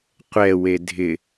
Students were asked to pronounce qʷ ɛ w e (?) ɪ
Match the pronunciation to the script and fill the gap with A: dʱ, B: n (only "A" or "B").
A